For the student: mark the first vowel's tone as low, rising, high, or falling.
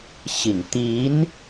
low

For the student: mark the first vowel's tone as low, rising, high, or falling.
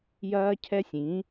high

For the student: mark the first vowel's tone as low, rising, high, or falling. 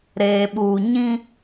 low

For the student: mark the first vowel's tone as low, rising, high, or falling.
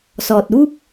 low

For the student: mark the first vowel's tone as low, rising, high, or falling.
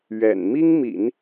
low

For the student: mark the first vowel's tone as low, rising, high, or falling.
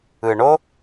low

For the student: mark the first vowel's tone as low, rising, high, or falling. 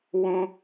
high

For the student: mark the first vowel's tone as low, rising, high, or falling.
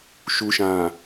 low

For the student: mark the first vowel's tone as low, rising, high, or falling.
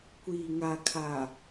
low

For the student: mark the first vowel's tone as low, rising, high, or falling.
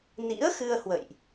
rising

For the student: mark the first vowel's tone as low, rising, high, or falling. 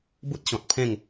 high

